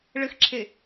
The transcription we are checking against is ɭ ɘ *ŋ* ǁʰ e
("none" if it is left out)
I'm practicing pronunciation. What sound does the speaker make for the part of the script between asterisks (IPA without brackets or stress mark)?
x